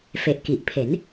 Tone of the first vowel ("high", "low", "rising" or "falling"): low